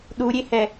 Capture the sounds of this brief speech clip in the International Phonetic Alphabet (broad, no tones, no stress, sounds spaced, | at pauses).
ɗ u ɾʲ e h ɛ